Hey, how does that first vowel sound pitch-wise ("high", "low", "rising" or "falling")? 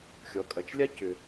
low